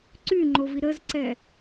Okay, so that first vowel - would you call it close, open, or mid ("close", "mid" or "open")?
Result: close